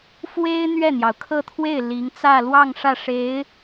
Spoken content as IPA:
f w e˥ ɪ̯ n̪ ɥ ɛ˥˩ n̪ j ɑ˩ ʊ̯ kʰ ɤ˥˧ t̪ʰ w e˥˩ ɪ̯ l i˧˥ ŋ t͡s ä˥˧ l w ɑ˥˧ ŋ ʂ ä˥˩ ʂ e˧˥ ɪ̯

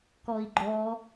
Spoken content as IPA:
k ɔ i̯ ɡ͡ǃ ɔ

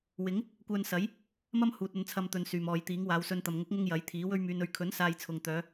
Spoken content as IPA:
w ɪ˨˥ ŋ | kʷ œː˧ n s ɐ˨˥ j | m ɐ˥ m h uː˨ t̚ ɵ˧ n t͡sʰ ɐ˧ m t̪ ɵ˨ n s yː˨˩ m ɔː˨ j t̪ iː˨˥ ŋ w aː˨˧ w s ɵ˧ n t̪ ɐ˨ m ŋ ʊ˨˥ k̚ ŋ ʊ˧ ŋ j ɐ˨˥ j t̪ʰ iː˨˥ w ɵ˧ ɥ m yː˨ n ɵ˨ ɥ kʰ ɵ˨˥ n s aː˧ j t͡sʰ ʊ˨ ŋ t̪ œː˨˧

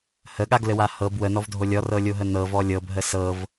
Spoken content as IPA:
h ə ɠ a ɡ l ɘ w a h ɤ b w ə n ɔ v dʱ o lʲ ɔ r ɤ lʲ o ɦ ə n ɤ v ɔ lʲ ɤ b ɦ ə s ɤ v

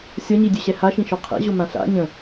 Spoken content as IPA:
sʲ ɒ ɲ i dʲ ø ɕ ɛ h a ʃ ĩ ʃ ɔ qʰ ɛ̰ ʑ o m ã ɬ a̰ ɲ ə̃

